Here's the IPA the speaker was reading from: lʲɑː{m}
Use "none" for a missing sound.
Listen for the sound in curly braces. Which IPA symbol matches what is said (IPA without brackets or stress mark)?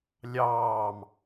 m